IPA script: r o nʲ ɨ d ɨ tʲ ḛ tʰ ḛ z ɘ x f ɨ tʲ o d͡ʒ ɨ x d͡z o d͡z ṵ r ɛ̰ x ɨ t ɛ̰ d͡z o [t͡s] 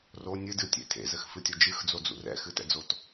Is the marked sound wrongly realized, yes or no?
yes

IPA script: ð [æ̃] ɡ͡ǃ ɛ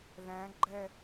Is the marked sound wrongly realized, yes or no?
no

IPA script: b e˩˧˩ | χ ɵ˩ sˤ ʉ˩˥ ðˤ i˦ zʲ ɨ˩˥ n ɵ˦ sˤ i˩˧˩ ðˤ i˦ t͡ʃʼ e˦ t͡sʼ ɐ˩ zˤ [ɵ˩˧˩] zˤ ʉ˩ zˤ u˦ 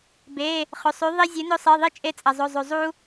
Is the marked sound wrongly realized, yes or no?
no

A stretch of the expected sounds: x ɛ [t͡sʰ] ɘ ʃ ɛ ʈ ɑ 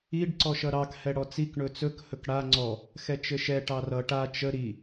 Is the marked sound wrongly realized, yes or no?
yes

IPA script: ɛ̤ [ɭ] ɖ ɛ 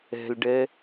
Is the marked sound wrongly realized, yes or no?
yes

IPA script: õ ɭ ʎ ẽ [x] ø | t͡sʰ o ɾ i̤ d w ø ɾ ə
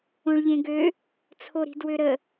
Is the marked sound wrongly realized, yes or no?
yes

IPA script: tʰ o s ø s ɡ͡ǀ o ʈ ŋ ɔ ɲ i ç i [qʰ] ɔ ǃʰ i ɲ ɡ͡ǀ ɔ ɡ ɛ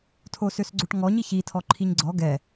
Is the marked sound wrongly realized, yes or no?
yes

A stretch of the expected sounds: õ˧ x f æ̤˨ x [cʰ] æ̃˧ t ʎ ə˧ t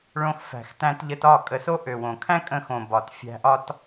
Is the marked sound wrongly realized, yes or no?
yes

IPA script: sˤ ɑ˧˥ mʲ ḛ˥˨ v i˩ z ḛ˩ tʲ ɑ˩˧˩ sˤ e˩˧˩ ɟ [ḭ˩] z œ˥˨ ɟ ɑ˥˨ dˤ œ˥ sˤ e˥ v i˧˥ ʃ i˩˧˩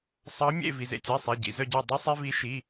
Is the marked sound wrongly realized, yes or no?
no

